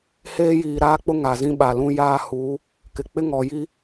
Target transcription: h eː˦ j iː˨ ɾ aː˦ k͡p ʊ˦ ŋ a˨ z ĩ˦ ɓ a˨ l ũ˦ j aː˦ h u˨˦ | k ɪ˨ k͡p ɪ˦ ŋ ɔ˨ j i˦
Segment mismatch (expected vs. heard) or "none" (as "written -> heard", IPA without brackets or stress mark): none